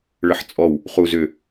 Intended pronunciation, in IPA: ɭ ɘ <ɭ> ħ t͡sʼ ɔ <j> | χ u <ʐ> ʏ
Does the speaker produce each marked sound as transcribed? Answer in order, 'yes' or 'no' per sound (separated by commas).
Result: no, no, no